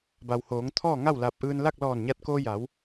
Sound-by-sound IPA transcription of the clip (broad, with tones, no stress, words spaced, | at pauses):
ba˩whoː˩˧ŋt̪ʰɔː˥˨ŋa˥˨w la˧p̚ ʔɯː˧nla˥˨k̚ lɔː˧˩nɲa˧t̚koː˧ja˩˧w